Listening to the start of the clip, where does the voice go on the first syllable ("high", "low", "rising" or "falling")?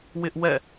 high